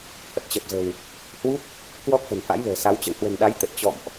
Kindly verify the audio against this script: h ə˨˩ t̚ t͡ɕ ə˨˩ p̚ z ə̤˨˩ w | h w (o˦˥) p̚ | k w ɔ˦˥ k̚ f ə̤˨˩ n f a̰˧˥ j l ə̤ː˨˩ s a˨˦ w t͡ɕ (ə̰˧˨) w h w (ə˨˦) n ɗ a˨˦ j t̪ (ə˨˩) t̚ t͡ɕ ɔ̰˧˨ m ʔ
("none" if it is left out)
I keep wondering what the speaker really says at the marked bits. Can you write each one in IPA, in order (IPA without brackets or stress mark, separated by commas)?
u˦˥, ə̰˧˨, ə̤˨˩, ə˨˩